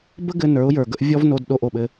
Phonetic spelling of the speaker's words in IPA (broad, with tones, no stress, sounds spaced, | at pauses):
b ə˦ ɡ ɘ˧ n ə˞˨˦ ʊ̯ j ə˞˨ ɡ ə˦ ʔ vʲ ɔ˦ v n o˧ d ɗ o˧ ʔ o˨ ɓ ɘ˧